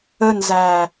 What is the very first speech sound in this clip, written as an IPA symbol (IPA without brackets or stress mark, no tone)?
ə